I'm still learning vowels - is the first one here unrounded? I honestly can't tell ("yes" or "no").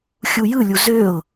no